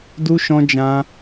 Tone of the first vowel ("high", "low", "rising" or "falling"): high